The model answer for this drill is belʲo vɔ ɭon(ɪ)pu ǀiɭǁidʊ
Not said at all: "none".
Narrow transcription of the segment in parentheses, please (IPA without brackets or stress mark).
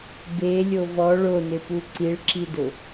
ɪ